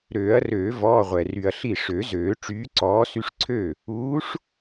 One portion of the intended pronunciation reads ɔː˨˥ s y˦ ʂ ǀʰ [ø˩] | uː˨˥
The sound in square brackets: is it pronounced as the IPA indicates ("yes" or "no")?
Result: no